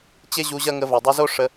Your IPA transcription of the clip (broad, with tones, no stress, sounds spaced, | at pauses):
t͡ɕ e˦ ʑ u˧ ʑ ɐ˦ ŋ ə˧ v ɐ˨ dˤ œ˧ z o˦ ʂ ə˧